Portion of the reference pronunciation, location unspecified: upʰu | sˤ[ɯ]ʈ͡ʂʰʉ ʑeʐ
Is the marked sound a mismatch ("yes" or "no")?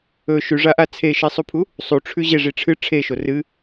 yes